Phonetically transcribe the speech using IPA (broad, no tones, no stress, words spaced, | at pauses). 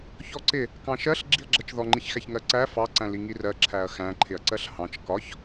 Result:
çɔǀɪ | kɑ̃ʃɜɬ ɡ͡ǁiɐ̯ɡ͡ǁɜt͡ʃðɔ ŋ͡ǃiçxæçŋɜǀæ fɑ ǀæ̃liŋirɜ ǁʰæɐ̯xæ̃ ǃʰɪɐ̯ǀɜɬhɑ̃t͡ʃ kɒç